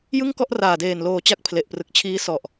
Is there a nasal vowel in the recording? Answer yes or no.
no